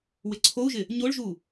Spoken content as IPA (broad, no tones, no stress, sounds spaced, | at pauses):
w ɪ ǀʰ o u̯ ʒ ɪ | ɲ o ɭ ʒ u